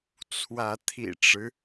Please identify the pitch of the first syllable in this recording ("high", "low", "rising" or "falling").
rising